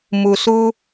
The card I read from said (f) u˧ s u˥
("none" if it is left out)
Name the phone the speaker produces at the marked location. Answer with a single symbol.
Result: m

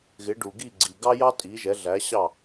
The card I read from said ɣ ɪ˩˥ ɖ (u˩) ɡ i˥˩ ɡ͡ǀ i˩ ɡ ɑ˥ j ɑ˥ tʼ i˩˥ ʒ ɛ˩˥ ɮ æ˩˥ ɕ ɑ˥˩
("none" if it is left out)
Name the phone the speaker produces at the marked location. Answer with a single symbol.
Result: u˩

